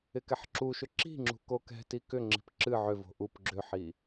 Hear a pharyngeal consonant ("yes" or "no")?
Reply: yes